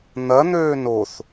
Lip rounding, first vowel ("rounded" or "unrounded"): unrounded